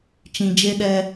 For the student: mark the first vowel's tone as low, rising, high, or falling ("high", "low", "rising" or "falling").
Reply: low